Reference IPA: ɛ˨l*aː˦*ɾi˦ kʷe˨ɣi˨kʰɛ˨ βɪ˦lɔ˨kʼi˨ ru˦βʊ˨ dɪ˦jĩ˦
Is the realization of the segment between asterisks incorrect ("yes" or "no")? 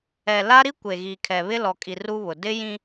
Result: yes